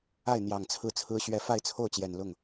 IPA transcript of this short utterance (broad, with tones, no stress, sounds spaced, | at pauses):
a˥˩ ɪ̯ n̪ j ɑ˨˩ ŋ t͡sʰ ɹ̩˥˩ t͡sʰ ɹ̩˥ ɕ ɥ ɛ˧˥ f a˥˧ ɪ̯ t͡sʰ o˥˩ ʊ̯ t͡ɕ j ɛ˨˩ n l ʊ˥˩ ŋ